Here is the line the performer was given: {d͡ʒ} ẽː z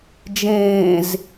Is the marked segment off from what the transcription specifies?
no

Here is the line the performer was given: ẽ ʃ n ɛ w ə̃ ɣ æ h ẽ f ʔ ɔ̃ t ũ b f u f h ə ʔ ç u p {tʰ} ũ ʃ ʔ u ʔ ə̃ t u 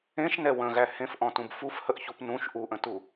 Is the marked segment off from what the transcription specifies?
yes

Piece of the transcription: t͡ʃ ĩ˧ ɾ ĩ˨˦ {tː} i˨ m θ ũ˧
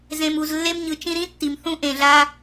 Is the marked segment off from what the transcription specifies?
no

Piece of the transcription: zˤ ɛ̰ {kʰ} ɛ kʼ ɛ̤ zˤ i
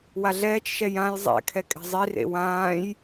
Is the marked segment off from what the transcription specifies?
no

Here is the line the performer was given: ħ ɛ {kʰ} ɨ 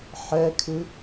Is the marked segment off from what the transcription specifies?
no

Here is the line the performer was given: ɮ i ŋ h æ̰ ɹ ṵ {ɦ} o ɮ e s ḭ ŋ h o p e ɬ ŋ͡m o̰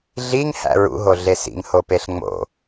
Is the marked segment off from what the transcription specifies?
no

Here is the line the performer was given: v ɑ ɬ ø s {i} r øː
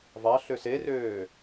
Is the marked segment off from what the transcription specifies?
yes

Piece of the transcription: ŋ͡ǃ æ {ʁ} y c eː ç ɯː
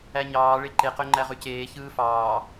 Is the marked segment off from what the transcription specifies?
no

